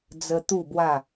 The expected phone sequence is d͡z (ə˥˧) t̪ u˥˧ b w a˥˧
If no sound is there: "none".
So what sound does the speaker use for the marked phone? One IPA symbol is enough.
ə˧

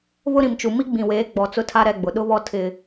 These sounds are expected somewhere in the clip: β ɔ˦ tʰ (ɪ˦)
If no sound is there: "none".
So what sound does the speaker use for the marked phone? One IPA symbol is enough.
ɪ˦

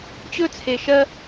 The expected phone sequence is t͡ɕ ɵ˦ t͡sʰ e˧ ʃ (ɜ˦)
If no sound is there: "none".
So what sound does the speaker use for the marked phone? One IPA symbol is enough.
ɜ˦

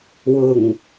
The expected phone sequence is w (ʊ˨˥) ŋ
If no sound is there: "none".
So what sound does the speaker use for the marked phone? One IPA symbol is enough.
ʊ˨˩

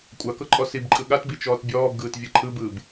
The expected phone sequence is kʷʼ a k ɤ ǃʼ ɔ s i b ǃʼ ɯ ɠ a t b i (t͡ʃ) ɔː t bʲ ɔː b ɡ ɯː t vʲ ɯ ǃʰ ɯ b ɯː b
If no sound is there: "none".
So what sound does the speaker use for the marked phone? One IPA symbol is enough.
t͡ʃ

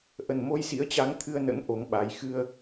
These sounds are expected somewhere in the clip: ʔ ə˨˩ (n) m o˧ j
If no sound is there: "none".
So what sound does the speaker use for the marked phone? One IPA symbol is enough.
n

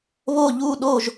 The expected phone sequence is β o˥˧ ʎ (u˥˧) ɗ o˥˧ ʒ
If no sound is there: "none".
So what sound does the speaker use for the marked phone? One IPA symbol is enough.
u˥˧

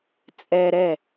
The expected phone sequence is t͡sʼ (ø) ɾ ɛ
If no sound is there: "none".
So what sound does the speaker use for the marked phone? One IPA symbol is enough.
ɛ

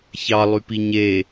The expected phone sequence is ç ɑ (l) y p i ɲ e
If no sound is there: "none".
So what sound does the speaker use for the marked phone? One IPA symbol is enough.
lˠ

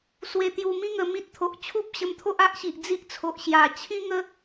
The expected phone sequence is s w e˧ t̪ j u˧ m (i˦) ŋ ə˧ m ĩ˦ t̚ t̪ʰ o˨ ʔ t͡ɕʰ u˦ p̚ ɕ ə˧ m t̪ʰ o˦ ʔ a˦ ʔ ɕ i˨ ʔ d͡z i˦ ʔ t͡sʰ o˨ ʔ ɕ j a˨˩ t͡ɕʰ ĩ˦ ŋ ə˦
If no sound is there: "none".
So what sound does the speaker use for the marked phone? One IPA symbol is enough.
ĩ˦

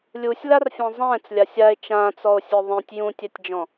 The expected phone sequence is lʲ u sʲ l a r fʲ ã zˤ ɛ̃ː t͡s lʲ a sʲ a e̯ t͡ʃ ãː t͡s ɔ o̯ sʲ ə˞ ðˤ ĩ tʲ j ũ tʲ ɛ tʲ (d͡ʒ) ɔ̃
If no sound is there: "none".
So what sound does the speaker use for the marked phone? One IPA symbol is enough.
d͡ʒ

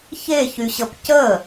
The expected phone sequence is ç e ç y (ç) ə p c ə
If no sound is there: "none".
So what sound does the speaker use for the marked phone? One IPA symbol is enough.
ɕ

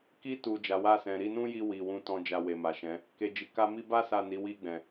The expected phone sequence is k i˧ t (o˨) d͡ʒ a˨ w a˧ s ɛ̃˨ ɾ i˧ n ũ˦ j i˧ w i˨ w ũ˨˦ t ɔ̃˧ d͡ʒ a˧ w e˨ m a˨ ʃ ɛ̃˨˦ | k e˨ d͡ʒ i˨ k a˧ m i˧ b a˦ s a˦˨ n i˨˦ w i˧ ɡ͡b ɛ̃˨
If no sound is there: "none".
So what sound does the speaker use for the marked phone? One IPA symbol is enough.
u˨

